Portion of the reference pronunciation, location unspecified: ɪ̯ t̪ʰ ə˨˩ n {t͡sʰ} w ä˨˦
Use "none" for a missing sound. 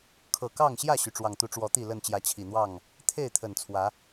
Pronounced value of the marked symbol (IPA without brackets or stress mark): t͡sʰ